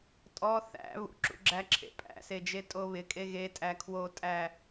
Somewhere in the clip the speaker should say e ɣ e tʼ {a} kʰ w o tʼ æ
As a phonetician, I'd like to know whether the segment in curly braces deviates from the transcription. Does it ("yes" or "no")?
yes